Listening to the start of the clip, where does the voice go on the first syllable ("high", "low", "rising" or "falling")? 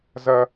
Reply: high